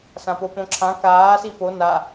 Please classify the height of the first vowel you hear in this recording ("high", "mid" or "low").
low